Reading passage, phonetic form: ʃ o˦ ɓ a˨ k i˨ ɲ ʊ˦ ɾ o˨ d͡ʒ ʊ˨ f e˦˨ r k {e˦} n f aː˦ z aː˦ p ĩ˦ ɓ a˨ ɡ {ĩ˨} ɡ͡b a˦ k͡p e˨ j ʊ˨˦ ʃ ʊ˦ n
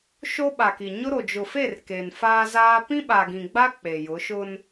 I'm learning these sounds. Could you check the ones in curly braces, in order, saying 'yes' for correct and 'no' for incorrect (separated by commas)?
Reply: no, yes